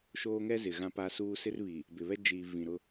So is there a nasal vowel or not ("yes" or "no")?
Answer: yes